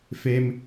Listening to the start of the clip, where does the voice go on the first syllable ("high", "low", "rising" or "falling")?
low